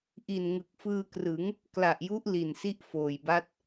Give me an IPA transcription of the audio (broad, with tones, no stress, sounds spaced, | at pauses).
ʔ i˨˩ n ŋ ɯ˨˩ k̚ f ɯː˧ k r ɯ˩˦ ŋ | k l a˨˩ ʔ j u˦˥ ʔ l i˨˩ n s i˦˥ ʔ f oː˨˩ j b a˦˥ t̚